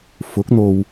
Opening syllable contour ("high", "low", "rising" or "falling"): rising